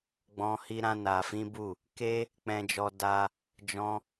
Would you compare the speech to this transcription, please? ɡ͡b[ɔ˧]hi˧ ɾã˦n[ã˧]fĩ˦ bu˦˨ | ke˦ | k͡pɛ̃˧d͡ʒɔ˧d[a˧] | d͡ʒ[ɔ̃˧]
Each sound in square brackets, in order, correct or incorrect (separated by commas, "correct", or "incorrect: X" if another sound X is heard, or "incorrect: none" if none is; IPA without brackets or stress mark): incorrect: ɔ̃˧, incorrect: a˧, correct, correct